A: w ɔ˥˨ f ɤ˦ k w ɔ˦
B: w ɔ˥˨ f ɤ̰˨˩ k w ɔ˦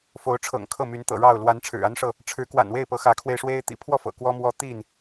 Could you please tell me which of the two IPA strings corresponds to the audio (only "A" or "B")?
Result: B